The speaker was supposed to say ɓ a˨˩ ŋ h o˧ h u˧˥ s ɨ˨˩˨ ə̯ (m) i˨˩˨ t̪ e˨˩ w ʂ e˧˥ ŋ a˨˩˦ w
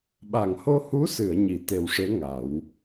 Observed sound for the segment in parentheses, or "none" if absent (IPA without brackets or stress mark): ɲ